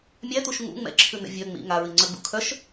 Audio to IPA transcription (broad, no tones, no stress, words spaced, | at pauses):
mʲætuʃ ŋṵ ŋ͡mɛ̰ǁʰʉnɛ̰ vʲœ ŋ͡mḭ ŋaɹiŋ͡ǀœɡ͡bṵ kʰœʃ